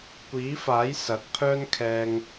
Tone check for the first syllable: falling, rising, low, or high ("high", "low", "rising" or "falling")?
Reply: rising